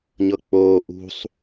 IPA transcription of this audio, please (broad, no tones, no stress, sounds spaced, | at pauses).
ɲ ɤ k͡p oː ʔ ṳ sˤ